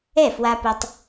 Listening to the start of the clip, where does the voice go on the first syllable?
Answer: falling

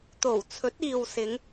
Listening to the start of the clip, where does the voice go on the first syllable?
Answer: low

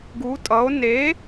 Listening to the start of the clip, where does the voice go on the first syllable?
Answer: rising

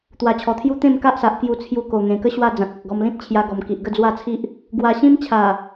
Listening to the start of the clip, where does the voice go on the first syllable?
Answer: low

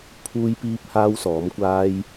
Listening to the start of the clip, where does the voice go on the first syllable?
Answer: high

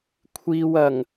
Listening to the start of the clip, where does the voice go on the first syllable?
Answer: low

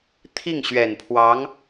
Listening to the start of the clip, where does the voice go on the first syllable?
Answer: falling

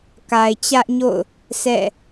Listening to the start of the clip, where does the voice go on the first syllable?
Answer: low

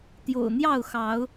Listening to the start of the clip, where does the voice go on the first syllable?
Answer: low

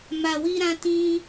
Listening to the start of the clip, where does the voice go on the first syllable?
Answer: low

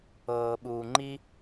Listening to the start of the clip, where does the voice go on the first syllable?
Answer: low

